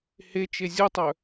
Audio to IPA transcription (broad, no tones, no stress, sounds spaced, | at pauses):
h e t͡ʃ e zʲ u tˤ œ